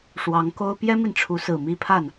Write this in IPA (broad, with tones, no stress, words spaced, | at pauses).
ʂwɑ˧˥ŋko˥ʊ̯ pjɛ˥mi˨nʈ͡ʂʰu˧˥sɹ̩˨˩ mi˥˧pʰa˥˩n